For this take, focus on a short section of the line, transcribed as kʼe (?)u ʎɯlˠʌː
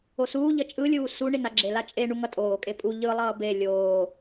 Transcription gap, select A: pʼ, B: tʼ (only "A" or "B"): A